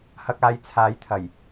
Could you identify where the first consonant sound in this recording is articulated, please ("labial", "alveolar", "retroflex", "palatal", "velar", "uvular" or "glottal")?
glottal